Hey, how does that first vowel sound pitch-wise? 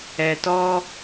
low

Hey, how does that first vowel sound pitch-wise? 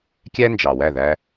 high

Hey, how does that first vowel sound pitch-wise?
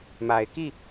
low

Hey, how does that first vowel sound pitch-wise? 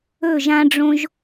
falling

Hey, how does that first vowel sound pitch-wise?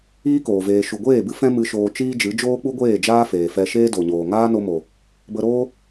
high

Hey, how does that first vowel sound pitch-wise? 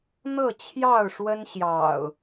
falling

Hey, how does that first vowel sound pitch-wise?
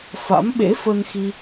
rising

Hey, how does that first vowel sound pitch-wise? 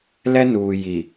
high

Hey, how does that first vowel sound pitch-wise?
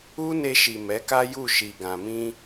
high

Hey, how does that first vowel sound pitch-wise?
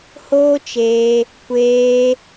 high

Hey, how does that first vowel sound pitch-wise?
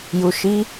low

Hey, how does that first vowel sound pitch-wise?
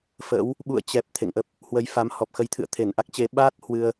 rising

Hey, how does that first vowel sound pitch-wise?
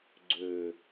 low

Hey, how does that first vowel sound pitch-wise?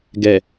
low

